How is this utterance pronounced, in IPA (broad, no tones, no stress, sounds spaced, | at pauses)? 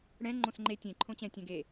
ɽ ɛ̃ ŋ͡ǃ õ s ŋ͡ǃ e tʲ ẽ ǃʰ õ t͡ɕ ɛ̃ tʲ ɛ̃ ɡ e